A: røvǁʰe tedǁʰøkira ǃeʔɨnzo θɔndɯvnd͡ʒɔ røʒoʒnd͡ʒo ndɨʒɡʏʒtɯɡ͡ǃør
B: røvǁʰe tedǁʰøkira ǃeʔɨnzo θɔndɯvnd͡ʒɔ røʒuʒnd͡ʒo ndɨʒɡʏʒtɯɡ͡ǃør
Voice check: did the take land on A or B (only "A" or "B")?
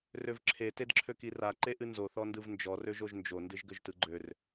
A